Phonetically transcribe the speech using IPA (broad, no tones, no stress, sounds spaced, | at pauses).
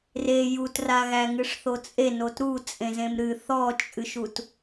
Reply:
r e j u t r a ɣ æ ŋ ɨ ʂ θ o t͡sʼ e n o t ɾ u t͡sʼ ẽ z ẽ m ɾ ɨ θ ɔ t͡ʃʼ ɨ ʃ u t